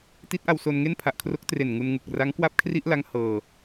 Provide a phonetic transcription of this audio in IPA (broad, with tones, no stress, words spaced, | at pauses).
ti˦˥t̚ʔa˧wso˧n ŋe˥˩npʰa˨˩ʔkʰro˦˥k̚ tre˨˩n ŋu˧nŋu˨˩k̚ ra˦˥ŋkwa˥˩p̚kʰri˥˩ʔla˦˥ŋ hɤː˧